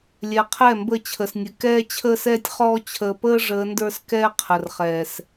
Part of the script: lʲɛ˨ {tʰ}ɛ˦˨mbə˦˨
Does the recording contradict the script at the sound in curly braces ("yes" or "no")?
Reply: yes